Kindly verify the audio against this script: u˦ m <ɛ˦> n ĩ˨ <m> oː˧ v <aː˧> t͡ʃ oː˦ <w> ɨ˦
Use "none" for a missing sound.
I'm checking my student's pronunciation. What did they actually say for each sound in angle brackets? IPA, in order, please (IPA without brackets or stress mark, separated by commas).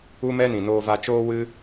ɛ˦, n, a˧, w